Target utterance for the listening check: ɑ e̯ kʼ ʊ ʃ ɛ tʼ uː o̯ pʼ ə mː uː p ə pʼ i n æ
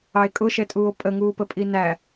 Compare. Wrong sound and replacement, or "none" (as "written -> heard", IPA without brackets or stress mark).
mː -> ŋ